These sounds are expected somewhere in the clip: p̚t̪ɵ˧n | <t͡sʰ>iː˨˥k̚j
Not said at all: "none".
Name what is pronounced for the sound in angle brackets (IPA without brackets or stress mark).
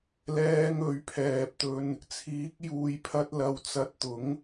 t͡sʰ